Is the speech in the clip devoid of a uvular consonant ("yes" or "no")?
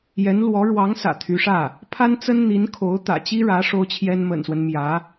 yes